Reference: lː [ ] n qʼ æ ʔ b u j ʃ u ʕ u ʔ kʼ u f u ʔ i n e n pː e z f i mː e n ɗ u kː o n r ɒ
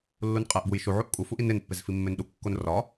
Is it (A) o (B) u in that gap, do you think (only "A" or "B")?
B